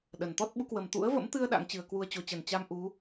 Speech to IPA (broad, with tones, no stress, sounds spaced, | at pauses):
ɗ ə˨˩ n t̪ ɔ˦˥ t̚ ɓ u˨˦ k w ə˨˩ m t̪ ṵ˧˥ ə̯ v ə̰˧˥ m t̪ ɨ˧ ə̯ ɗ a̰˧˥ ŋ t͡ɕ ɨ˨˩ ə̯ k w u˧ ə̯ t͡ɕ o˨˦ t͡ɕ ə˨˩ n t͡ɕ a˧ m ʔ u˨˦